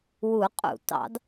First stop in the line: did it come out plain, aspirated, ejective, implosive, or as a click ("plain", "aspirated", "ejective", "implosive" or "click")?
ejective